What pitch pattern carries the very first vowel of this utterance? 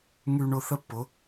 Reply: low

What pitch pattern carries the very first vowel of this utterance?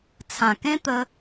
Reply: low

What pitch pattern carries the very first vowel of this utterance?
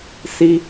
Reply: high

